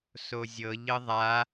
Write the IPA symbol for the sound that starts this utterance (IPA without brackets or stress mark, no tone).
s